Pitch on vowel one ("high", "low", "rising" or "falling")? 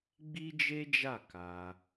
high